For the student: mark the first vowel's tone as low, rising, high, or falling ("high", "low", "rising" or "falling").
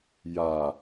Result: low